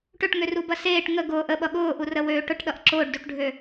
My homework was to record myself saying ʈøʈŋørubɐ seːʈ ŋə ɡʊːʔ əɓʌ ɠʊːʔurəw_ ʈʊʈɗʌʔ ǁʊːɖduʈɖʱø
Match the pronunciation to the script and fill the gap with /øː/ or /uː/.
øː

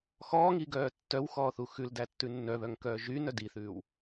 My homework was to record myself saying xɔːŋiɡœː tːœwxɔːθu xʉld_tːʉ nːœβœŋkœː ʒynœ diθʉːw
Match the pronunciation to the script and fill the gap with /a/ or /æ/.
æ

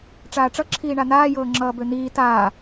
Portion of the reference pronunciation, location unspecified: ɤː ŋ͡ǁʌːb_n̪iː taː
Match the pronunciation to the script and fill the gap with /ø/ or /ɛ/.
ø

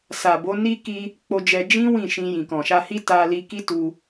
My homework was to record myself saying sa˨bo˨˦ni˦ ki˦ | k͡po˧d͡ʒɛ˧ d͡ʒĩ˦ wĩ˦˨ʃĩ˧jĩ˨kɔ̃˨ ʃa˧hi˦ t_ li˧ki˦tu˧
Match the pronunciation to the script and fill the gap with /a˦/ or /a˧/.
a˧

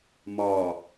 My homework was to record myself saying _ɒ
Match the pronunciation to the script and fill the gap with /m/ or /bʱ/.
m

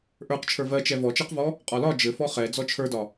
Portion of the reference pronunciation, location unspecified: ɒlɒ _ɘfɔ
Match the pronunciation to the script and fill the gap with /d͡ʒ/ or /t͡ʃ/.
d͡ʒ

